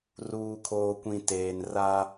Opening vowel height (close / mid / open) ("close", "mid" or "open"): close